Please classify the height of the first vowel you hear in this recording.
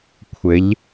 mid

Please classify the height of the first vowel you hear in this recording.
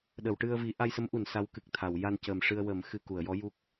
mid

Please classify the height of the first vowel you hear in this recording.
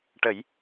mid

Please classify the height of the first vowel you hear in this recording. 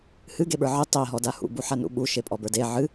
high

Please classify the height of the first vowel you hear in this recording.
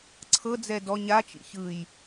mid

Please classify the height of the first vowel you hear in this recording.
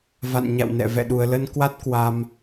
low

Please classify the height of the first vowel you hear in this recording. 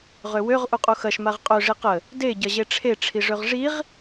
mid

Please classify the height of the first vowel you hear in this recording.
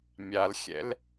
low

